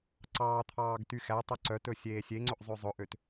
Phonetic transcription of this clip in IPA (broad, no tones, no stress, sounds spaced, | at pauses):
ǀ ɑː t̪ʰ ɑː ɡ t y x æ tˤ o ǀ œ t ɵ sʲ eː sʲ e ŋ͡ǀ ɵ ʔ zˤ ø zˤ ɵ ʔ ø t